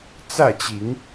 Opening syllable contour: falling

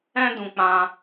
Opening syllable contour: high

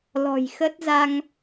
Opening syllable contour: low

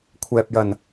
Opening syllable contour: low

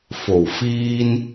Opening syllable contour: low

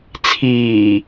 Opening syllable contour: low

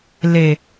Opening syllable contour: low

